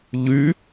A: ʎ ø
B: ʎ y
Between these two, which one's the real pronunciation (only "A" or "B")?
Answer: B